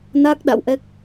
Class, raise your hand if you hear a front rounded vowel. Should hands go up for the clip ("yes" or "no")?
no